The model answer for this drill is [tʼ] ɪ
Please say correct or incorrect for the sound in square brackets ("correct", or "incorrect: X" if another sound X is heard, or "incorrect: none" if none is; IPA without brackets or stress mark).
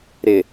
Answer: incorrect: ɾ